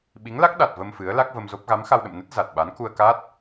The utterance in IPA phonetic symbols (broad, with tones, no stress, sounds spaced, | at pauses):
ɓ i˨˦ ŋ l a˦˥ k̚ ɗ a˨˩ t̚ v ə˧ m f ɨ˨˦ ə̯ l a˦˥ k̚ v ə˧ m z o˦˥ p̚ ɣ a˨˦ m x a˧ w ɗ ə̰˧˨ m n ə˦˥ t̚ z a˨˩ t̚ ɓ a˨˦ n k u˧ ə̯ k a˦˥ t̚